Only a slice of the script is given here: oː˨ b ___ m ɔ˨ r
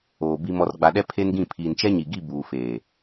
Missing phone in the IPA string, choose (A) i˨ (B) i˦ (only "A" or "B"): A